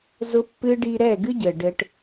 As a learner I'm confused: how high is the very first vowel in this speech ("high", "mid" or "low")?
high